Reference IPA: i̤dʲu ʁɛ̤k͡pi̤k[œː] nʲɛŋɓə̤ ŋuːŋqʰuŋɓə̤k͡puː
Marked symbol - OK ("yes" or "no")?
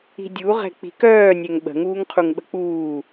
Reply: yes